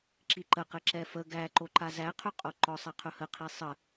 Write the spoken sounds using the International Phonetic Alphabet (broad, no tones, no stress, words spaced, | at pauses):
ǁiǃəqɘ ǁɛfə ɡæ ǃoǃazæqʰɵ qʼoǃɔsˤɛ qʰɵhəqʰi sˤə